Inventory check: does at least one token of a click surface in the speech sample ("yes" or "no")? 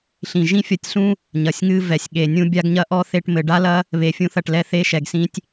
no